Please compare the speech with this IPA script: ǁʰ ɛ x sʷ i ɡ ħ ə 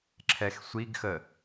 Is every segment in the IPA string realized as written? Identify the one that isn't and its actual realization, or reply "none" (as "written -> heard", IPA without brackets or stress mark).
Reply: ħ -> x